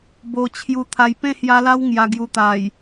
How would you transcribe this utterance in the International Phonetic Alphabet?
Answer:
bo˧ t͡ɕʰju˧t̪ʰa˧j pẽ˥˧hja˧la˦w ŋja˧ɡju˧t̪a˨˩j

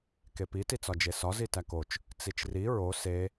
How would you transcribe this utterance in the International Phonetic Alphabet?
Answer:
kepi tit͡sɒd͡ʒesɒ zitækot͡ʃ | t͡sit͡ʃri ɹo se

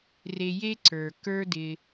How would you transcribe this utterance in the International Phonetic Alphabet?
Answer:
re˧je˦ ǀə˞˨ kə˞˦dɪ˧

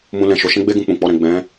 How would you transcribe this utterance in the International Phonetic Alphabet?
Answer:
mũ˦lɛ̃˦˨ʃo˧ ʃɛ̃˦ɡ͡be˦ɡũ˧ k͡pũ˨ k͡pɔ˧ɾɛ̃˨ ɡ͡bɛ̃˨˦

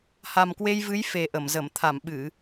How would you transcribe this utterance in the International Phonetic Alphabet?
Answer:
ha˨˩mkwe˧jvɨ˨˦j fe˨˩ʔə˧˩mzə˧˩m t̪ʰa˧˩mɓɨ˧˩˨

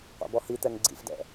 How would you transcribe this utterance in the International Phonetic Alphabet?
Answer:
qʷɑ̰bɔhit̪ɛŋ ɡ͡ǀḭfdɛ̰

